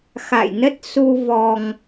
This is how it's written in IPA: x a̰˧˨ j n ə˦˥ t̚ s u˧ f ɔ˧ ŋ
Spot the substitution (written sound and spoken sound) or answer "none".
f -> v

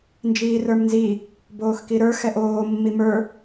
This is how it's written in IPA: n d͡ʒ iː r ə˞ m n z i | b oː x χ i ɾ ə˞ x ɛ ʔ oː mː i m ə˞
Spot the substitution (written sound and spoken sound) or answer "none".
χ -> k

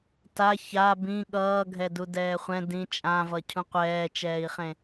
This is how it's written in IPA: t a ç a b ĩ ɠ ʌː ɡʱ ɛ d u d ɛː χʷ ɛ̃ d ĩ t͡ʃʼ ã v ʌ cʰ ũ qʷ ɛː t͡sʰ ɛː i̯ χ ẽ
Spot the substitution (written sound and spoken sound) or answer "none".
t͡sʰ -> t͡ʃ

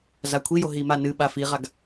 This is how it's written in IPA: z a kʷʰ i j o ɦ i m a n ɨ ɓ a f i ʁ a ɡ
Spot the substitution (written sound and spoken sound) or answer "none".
none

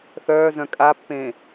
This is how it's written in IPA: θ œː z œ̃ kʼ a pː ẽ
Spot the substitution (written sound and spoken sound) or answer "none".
none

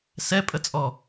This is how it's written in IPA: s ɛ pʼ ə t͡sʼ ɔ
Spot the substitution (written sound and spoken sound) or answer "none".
none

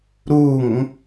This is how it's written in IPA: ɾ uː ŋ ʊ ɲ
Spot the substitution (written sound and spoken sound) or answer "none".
ɲ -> ŋ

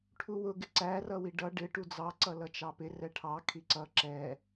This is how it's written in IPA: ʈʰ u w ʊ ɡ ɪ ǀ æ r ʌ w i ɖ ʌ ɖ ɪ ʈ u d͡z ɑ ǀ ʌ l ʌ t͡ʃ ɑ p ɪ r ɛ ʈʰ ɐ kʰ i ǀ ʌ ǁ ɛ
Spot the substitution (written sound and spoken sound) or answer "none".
ɐ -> ɑ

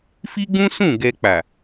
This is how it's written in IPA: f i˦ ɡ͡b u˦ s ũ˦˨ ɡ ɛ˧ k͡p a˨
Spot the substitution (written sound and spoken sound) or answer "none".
u˦ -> ũ˦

